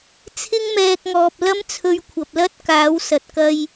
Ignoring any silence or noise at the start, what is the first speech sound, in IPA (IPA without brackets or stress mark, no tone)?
t͡sʰ